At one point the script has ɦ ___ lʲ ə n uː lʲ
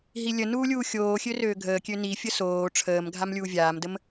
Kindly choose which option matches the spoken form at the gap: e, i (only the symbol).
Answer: i